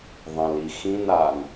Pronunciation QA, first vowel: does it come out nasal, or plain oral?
nasal